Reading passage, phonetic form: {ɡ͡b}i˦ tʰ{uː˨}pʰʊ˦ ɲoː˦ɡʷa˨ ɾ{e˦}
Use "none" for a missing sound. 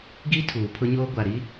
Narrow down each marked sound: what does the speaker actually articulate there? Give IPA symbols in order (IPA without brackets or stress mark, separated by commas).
ɡ, uː˨, i˦